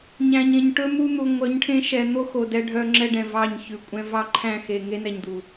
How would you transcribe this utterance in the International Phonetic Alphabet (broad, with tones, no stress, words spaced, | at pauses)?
ɲæ̃˨ɲẽ˨ɲ ʈɵ˦ mu˦n̪u˨ ŋʷœ˨˦ɲʈʰẽ˦ ʃɛ˨n̪o˦xo˨ dɛ˦ ɖʱœ˦ ŋ͡ǁɛ˦ɖɛ̃˨ vɑ˦˨ɲçʉ˨kʷʼɛ̃˦ vɑ˦ ǃʰæ̃˦˨xe˨ ŋe˦nɛ˨ɲd̪u˨